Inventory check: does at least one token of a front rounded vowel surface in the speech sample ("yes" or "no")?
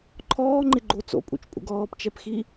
no